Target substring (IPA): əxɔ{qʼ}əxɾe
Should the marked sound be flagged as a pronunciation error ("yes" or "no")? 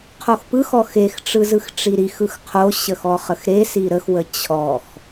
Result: yes